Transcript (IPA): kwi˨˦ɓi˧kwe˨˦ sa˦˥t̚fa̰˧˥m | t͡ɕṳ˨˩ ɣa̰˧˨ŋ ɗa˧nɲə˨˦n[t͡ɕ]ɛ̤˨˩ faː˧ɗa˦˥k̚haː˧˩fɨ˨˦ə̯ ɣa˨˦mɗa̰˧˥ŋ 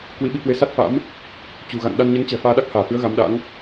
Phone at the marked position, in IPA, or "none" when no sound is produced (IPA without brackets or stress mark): t͡ɕ